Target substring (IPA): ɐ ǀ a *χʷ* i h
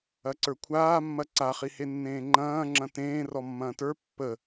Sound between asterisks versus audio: incorrect: χ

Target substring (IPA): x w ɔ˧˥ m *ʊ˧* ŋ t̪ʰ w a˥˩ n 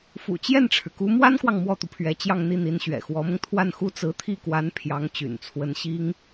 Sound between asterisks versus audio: correct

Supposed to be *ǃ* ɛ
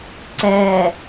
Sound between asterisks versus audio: incorrect: ǀ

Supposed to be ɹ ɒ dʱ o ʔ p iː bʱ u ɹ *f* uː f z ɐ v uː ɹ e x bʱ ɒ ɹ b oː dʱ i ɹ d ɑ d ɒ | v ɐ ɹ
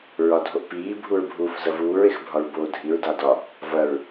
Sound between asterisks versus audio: incorrect: bʱ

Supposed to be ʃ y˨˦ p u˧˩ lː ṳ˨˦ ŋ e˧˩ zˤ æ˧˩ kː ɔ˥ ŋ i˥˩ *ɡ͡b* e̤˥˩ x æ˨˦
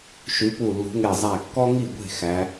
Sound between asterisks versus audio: incorrect: ɡʷ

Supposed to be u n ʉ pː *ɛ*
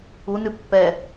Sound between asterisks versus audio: correct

